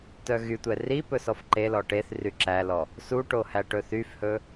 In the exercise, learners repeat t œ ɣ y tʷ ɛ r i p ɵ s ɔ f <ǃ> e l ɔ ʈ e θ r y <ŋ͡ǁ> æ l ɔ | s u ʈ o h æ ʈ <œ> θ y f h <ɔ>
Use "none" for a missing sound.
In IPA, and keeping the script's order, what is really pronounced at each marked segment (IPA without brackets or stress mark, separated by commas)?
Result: ǃ, ǁ, ɵ, ɵ